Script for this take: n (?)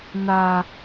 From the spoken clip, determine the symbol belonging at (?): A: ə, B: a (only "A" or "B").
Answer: B